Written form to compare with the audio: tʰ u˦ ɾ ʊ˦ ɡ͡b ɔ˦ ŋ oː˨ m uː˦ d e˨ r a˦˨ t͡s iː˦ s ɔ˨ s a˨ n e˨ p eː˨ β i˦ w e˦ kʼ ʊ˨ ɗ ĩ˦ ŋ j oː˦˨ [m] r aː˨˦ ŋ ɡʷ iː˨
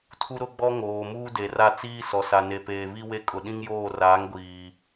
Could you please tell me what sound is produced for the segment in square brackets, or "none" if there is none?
none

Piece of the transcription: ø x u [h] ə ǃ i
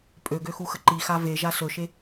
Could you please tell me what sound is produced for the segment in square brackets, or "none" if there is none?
x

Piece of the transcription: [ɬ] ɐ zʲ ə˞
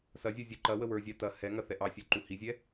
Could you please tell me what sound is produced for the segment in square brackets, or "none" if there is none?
s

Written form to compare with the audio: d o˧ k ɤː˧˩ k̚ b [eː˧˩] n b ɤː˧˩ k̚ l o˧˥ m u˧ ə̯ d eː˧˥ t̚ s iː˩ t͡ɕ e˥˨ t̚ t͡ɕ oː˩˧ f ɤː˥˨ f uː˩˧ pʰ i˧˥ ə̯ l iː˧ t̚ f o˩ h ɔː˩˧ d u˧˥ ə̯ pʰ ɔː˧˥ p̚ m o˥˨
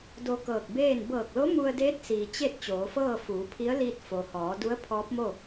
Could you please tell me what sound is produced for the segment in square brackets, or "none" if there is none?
eː˥˨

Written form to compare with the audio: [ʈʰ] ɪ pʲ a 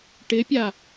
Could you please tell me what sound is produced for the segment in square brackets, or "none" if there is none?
ʈ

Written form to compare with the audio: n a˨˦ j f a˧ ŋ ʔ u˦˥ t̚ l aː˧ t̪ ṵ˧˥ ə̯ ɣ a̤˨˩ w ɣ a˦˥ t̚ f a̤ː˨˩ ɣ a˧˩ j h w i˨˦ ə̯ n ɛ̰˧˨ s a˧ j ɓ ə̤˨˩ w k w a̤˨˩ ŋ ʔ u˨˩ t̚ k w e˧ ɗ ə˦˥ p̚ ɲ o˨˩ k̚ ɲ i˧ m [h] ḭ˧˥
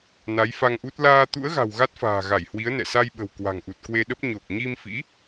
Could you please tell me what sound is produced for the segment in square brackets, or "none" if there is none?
f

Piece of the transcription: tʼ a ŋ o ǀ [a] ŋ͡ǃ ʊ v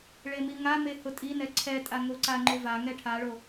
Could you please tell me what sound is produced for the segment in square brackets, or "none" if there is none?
a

